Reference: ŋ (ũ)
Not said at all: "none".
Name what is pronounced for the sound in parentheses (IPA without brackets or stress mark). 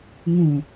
ũ